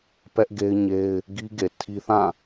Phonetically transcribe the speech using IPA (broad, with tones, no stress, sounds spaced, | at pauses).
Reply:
p ɛ˦ ʔ ɡ e˦ ɪ̯ ɲ e˦ ɪ̯ | ɡ i˦ ɡ e˨ tʰ i˦ θ ã˦˨